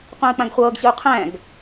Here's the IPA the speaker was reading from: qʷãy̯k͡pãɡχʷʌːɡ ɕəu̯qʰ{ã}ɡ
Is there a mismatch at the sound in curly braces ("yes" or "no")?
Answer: yes